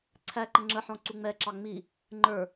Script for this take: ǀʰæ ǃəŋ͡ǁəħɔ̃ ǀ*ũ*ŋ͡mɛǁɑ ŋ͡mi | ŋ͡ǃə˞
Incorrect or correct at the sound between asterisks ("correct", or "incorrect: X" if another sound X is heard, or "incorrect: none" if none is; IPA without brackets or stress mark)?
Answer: incorrect: u